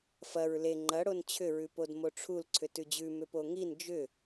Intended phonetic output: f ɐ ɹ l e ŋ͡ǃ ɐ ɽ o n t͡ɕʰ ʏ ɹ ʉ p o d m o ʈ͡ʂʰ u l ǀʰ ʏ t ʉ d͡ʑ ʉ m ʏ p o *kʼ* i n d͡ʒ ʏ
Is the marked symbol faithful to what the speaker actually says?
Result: no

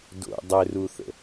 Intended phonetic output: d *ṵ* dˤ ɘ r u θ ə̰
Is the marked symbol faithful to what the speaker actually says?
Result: no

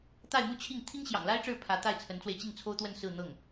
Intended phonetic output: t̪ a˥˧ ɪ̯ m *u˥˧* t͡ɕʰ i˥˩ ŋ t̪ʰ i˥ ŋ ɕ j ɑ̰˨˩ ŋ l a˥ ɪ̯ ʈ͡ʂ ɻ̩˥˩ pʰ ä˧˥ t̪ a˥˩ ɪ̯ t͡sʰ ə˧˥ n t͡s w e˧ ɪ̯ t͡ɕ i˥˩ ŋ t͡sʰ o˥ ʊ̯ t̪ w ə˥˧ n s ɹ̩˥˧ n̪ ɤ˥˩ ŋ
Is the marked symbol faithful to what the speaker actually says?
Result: yes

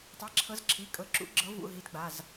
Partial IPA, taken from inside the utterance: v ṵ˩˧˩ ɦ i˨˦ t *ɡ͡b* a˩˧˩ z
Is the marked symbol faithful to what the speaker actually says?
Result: yes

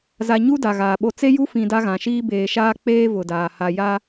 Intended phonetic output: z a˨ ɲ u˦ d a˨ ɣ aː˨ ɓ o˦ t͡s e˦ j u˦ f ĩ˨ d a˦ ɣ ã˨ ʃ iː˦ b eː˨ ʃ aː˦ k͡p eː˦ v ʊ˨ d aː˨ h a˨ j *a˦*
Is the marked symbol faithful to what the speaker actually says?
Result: yes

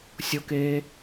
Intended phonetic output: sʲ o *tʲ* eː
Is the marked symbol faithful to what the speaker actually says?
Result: no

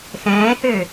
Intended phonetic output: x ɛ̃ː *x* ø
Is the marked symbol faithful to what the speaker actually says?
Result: no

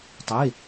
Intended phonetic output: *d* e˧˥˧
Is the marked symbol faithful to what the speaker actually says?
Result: no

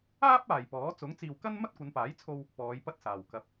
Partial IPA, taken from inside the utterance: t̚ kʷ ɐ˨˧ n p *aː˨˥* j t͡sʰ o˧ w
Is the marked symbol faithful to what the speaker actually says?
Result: yes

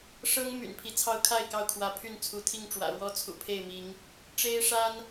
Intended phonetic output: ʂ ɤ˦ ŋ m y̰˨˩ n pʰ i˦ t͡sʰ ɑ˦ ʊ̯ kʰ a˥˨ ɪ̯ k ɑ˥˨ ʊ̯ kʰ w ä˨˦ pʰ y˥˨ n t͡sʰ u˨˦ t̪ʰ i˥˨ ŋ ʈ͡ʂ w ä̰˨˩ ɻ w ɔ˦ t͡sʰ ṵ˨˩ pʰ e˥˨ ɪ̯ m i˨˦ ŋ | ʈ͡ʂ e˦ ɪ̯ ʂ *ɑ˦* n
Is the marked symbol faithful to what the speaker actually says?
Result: no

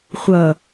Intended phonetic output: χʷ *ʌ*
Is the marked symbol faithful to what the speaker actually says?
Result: yes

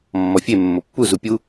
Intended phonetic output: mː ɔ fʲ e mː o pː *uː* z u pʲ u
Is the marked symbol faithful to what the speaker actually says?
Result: no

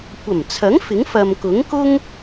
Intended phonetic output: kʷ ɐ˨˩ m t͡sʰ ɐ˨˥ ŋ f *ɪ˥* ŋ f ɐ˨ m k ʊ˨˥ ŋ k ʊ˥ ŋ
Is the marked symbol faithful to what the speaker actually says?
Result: no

